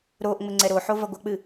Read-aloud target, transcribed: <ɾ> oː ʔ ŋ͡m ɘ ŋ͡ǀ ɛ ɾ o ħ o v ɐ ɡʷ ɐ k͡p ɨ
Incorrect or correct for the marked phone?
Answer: correct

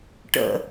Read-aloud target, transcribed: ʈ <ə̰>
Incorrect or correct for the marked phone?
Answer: correct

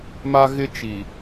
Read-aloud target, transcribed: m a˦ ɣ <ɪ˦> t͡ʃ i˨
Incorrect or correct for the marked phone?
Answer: correct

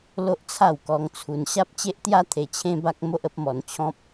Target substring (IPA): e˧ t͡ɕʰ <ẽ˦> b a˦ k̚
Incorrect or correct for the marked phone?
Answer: correct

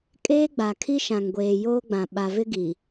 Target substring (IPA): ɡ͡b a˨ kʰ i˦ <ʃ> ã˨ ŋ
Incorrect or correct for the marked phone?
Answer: correct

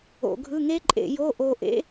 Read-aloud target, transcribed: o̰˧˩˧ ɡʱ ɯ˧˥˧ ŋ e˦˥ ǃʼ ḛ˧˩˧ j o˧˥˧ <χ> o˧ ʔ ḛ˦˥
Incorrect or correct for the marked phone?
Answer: incorrect: ʔ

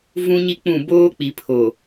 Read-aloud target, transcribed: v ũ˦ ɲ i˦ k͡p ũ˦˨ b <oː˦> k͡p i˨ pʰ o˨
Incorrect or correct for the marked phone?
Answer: correct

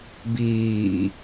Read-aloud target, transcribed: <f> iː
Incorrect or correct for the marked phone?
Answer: incorrect: b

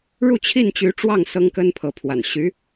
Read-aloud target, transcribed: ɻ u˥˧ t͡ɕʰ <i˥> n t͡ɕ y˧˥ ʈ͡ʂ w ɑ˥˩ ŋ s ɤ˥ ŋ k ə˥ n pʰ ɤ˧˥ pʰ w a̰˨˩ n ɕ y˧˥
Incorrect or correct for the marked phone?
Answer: incorrect: i˥˩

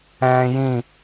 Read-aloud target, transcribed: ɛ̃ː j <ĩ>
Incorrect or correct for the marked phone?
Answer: correct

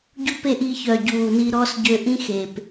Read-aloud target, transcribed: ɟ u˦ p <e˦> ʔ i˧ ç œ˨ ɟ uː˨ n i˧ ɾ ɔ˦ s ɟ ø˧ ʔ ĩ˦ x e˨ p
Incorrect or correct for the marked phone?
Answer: correct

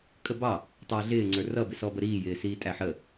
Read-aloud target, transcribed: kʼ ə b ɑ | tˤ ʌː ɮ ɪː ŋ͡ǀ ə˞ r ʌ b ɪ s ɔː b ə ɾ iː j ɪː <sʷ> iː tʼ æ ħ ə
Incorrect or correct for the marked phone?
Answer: incorrect: s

